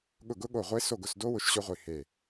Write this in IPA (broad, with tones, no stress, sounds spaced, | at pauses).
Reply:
ɠ ʊ˦˨ ɡ ʊ˦˥ ɠ o˦˨ ʁʷ e˦˥ s o˦˨ ɡ ʊ˦˨ s d o˦˥ w ʊ˦˥ ʃ ɕ ʊ˦˥ ʁʷ i˦˨ h e˦˨